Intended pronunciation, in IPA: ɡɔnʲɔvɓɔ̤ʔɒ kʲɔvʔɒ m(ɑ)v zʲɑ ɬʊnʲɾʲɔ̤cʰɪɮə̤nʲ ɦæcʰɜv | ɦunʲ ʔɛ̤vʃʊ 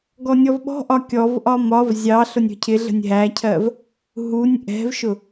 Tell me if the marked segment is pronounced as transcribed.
no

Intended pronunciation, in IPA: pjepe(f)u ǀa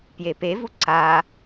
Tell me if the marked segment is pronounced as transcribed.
no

